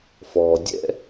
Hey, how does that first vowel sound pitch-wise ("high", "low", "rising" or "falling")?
low